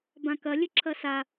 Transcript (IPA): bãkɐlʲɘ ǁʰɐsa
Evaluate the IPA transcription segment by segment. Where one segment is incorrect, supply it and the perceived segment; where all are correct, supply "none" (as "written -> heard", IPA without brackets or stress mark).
none